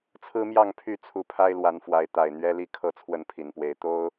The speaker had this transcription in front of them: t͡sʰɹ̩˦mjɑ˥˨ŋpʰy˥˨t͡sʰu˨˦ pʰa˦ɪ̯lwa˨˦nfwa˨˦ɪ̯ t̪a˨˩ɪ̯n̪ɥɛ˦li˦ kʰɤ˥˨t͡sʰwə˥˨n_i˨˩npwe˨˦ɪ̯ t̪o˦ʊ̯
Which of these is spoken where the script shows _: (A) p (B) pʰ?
B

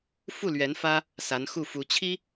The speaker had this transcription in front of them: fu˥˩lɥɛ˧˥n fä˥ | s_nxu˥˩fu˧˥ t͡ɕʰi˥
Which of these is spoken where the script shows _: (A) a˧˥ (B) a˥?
A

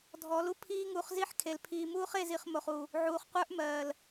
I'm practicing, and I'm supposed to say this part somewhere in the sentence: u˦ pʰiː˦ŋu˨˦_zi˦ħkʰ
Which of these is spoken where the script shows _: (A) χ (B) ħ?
A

